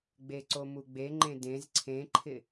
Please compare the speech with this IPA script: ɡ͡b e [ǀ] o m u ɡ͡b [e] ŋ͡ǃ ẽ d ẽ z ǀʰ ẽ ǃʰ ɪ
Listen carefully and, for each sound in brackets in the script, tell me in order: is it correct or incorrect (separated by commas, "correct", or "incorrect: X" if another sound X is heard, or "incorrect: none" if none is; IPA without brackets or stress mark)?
correct, correct